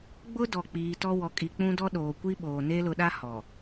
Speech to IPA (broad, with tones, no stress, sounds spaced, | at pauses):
ɡ͡b ʊ˦ d ɔ˨ k͡p iː˨ t ɔ˦ w ɔ˨ kʼ i˨ k͡p ũ˦ d ɔ˦ ɗ oː˨ kʷ i˦ ɓ oː˨ n eː˦ l ʊ˨˦ ɗ a˦ h ɔ˨